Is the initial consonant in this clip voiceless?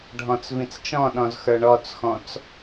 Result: no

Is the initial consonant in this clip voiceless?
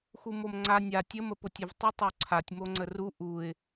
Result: yes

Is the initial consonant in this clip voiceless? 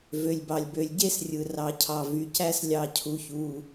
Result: no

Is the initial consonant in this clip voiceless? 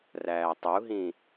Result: no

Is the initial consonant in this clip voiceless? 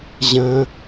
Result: no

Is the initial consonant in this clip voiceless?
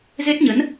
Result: no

